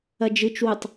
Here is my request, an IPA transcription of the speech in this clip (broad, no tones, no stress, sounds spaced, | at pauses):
ɐ d͡ʒ ɨ t͡ʃ w u tˤ